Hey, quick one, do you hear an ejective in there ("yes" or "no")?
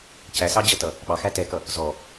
no